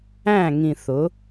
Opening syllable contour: falling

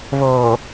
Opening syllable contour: low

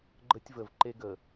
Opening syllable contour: high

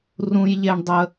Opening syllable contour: high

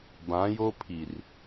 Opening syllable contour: rising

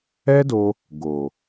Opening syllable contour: high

